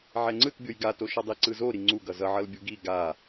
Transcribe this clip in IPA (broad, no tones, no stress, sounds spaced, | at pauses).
ʕ ɛ ŋ͡ǀ ɯ t bʲ o j ɡ a t o ʃ ʌ dˤ i ǀ ɯ z o ɾ i ŋ͡ǀ u ɡ ʌ z ʌ ʕ ʌ l bʲ u ɡ i ɡ a